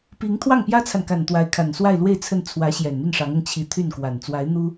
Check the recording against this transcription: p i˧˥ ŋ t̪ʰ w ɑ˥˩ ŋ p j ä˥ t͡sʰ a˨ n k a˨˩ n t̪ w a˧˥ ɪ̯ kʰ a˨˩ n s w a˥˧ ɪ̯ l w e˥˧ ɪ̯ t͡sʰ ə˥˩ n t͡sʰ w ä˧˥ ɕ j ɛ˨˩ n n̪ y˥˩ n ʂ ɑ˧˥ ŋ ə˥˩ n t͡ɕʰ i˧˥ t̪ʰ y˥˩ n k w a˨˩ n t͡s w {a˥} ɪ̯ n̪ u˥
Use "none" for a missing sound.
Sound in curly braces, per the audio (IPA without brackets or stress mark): a˧˥